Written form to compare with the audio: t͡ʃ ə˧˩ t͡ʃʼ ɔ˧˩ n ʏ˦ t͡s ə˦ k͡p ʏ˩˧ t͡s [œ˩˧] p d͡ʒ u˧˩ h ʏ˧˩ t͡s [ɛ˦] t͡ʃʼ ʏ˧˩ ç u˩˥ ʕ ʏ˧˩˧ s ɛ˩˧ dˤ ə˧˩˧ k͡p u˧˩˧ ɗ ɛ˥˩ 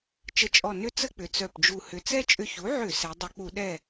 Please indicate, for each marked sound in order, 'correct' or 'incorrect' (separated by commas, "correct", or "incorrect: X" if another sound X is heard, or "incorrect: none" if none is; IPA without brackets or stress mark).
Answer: incorrect: œ˧˩, correct